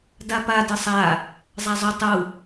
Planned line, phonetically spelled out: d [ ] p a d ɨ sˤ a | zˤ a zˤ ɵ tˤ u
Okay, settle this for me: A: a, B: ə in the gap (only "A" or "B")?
A